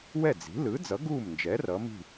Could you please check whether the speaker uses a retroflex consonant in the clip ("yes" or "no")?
no